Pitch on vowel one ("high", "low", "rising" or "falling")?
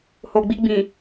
low